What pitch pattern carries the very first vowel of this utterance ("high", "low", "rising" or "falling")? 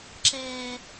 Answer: high